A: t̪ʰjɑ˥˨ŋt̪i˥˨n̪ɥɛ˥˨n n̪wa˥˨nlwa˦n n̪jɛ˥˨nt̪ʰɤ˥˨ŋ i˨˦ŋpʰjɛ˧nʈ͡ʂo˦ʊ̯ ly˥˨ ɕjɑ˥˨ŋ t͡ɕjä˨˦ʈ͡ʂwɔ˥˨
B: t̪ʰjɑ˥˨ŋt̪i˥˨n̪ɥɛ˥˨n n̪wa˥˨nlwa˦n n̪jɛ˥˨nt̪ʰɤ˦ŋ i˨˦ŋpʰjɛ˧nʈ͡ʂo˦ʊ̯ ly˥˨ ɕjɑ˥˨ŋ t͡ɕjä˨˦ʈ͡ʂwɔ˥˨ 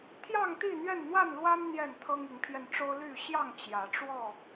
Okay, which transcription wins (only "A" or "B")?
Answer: B